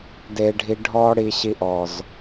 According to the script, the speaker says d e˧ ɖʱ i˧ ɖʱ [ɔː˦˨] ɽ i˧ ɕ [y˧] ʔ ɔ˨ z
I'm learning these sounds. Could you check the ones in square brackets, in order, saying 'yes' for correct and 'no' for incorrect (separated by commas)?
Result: no, no